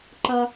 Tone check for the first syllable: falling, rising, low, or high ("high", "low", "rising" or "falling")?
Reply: high